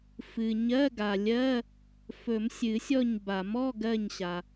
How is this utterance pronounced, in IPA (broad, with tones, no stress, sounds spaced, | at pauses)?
f ɨ˩ ɲ ɜ˧˥˧ ɡ a˩ lʲ ɜ˧˥˧ | f ɵ˨˩˦ m sʲ ɨ˨˩˦ sʲ ɔ˦˨ ɲ b a˨˩˦ m ɔ˧˥˧ ɡ ɜ˦˨ ɲ ɕ a˩